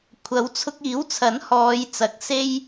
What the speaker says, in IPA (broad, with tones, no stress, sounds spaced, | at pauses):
kʷʰ ɐ˨˥ w t͡sʰ ʊ˧ k̚ iː˨˥ w t͡sʰ ɐ˨˥ n h ɔː˨˧ j t͡s ɐ˨˥ k̚ s e˥ j